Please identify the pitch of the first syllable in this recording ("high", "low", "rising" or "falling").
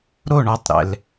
falling